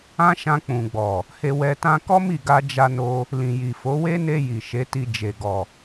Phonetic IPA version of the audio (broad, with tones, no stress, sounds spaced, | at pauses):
ã˦ ʃ ã˧ k͡p ũ˨ ɡ͡b ɔ˨ | h e˧ w ɛ˧ t ã˧ k ɔ˦ m i˦˨ ɡ a˧ d͡ʒ a˧ n o˧ | l ĩ˨ j i˨ f o˨˦ w e˦ n e˧ j i˨ ʃ e˨˦ t i˧ d͡ʒ e˨ ɡ ɔ˨